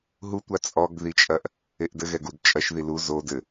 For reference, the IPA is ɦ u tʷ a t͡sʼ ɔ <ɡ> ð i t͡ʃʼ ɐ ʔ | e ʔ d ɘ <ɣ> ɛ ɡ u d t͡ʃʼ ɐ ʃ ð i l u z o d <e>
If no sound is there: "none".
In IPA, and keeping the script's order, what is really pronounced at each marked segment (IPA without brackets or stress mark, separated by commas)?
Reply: ɡ, ɣ, ɘ